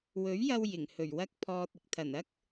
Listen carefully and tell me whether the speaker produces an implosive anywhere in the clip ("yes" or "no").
no